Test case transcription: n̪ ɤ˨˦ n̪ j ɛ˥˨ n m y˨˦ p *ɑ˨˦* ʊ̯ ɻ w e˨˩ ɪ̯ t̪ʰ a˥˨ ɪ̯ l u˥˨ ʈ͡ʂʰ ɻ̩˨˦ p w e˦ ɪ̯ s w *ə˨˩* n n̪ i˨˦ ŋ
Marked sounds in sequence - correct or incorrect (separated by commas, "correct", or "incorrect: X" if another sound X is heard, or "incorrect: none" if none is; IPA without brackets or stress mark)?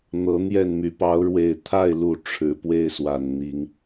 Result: correct, incorrect: a˨˩